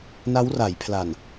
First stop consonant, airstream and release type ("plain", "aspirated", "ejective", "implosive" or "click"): aspirated